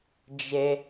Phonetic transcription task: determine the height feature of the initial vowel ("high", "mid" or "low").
mid